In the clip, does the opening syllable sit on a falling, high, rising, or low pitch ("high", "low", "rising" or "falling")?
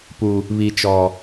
low